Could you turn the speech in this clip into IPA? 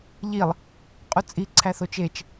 ʎ i lˠ | qʼ u t͡sʼ i ǀʰ æ θ o t͡ʃ e t͡ʃ

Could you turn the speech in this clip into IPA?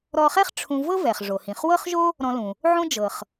ɾ ɔ˧ χ ɛ˥ χ ʈ͡ʂʰ ũ˧ v ɤ˥ v ɛ˩ χ ʐ o˩ h ĩ˩ χ w ɤ˥ χ ʒ o˥ | ɾ ɔ̃˧ l ũ˩ | ʕ õ˥ d͡ʒ ɤ˩ χ

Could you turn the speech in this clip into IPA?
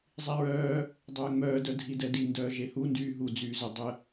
zˤ i ɹ œː | dˤ œː ŋ͡m œː d œ dʱ i d ɛ d i n d œː ʒ e h u n d yː ɦ u d͡z yː z ə dˤ ə

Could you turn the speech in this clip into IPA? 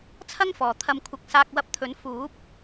t͡sʰ ɐ˥ ŋ f ɔː˨ t̪ʰ ɐ˧ m kʷʰ ɐ˧ k̚ s aː˧ k̚ w ɐ˧ p̚ t̪ʰ ɵ˨˥ n f uː˨˥ p̚

